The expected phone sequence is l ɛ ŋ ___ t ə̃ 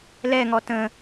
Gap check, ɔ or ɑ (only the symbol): ɔ